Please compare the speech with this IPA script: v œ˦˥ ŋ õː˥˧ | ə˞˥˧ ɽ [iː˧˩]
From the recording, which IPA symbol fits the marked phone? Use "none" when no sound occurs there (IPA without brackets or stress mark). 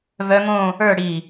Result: iː˧˩